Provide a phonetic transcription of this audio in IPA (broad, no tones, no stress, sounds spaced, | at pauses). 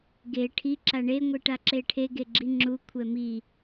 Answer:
ɡ e ʈʰ i ǁ a ɳ e ŋʷ i ʈ a ǁ e ʈʰ e ɡ e ɡ͡ǁ i ŋ͡ǁ u kʷʰ ɛ m i